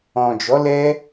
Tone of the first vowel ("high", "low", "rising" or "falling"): low